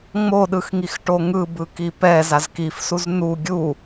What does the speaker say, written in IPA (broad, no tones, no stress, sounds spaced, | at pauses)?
ŋ͡m o ɗ ɯ x ŋ i x ʈ o ŋ ɯ b ɯ k i p ɛ z a z k i f s u z n̪ u ɡʲ u